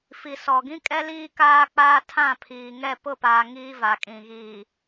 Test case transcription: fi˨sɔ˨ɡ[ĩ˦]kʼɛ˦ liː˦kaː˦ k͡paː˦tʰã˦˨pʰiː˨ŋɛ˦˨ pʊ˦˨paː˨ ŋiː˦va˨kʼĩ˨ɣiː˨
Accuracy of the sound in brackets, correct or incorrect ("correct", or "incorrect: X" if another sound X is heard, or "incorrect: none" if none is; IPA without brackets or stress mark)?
correct